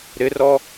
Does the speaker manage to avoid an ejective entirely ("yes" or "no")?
yes